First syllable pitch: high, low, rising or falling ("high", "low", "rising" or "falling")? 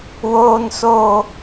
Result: high